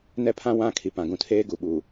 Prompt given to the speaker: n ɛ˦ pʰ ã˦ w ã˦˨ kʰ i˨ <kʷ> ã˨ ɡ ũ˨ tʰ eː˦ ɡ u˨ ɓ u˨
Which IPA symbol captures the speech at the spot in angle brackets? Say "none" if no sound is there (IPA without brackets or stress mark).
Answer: p